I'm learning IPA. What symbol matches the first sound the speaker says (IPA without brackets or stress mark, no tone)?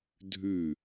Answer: dʱ